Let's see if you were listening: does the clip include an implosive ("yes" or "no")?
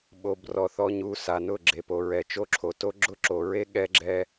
yes